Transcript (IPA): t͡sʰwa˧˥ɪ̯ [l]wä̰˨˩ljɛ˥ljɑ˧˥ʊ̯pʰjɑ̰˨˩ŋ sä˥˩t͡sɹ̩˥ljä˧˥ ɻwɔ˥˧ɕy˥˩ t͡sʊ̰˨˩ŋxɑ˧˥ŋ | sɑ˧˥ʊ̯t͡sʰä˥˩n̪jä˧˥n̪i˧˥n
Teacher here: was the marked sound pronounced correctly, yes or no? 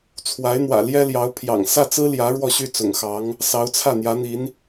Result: no